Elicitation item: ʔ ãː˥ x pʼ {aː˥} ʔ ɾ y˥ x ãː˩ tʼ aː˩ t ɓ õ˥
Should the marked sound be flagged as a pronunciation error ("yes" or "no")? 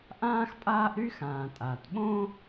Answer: no